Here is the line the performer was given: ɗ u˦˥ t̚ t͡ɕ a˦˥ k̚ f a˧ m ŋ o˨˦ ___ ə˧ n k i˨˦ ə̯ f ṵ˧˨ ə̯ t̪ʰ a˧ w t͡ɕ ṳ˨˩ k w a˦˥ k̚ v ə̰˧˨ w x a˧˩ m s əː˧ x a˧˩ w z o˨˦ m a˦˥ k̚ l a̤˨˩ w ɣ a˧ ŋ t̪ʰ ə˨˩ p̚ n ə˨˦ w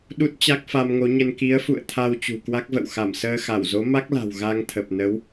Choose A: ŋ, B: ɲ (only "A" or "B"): B